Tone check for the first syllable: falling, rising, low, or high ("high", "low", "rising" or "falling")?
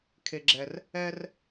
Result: high